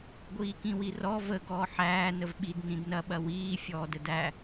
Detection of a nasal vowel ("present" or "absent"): present